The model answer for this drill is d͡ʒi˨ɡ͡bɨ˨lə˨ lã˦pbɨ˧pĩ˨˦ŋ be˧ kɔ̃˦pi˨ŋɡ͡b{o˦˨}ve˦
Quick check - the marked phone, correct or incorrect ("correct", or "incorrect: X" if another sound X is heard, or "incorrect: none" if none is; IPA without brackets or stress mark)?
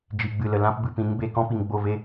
correct